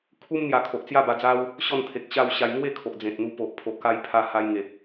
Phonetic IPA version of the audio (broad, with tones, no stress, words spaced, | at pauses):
kʰu˦mn̪ja˨˩kʰo˨ʔt͡sja˥˧ ba˧d͡za˦w | ɕɔ˥˧nt̪ʰe˨k̚ɕa˥˧wɕa˧j ŋwe˥˧kʰo˨ʔ d͡zẽ˨t̚n̪u˧po˨ʔ pʰo˨ʔka˧jpʰa˧ ha˧jŋe˨k̚